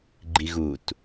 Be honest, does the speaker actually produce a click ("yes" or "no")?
yes